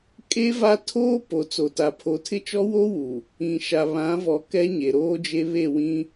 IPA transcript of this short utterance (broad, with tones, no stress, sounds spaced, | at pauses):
kʼ e˦ v a˦ tʰ oː˦ p o˨ t͡s o˨ t a˨ pʰ o˨ tʰ ɪ˦ t͡ʃ ɔ˦ w oː˦ w u˨ | ĩ˨ ʃ a˨ β ã˨˦ v ɔ˨ k ɛ˦ ɲ e˨ ɾ oː˦ d͡ʒ e˦ β e˦˨ w ĩ˦